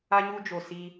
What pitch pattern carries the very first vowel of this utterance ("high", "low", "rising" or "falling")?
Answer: high